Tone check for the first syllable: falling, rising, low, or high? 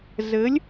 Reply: rising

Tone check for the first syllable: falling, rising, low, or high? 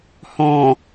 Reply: low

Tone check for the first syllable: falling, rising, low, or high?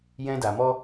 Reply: high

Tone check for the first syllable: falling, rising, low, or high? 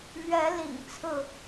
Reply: rising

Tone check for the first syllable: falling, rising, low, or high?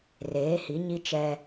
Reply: rising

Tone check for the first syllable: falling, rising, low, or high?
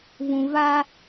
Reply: low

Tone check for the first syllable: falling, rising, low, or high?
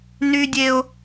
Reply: high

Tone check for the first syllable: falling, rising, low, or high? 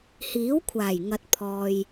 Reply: rising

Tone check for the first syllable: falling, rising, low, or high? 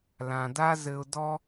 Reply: low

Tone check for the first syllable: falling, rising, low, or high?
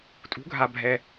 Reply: rising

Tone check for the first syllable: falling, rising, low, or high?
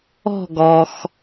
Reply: falling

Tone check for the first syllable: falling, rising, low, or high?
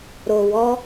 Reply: low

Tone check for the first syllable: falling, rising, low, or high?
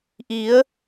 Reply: rising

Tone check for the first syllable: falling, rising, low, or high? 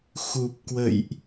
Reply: low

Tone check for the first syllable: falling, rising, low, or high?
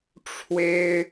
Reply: high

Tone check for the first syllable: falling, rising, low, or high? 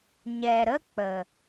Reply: low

